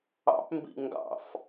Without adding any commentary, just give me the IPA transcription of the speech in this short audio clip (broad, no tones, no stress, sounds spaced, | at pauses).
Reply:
ɑ̰ p m b ḭ ŋ ɡ ɑ̰ f